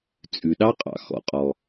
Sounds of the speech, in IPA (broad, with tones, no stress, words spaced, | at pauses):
t͡sʼʉ˩ɗɑ˥qʼɑ̰˩ xɔ̰˩qʼɔ˩